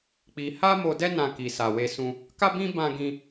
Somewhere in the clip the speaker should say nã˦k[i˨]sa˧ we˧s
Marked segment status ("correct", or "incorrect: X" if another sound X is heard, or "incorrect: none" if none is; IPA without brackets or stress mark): incorrect: i˧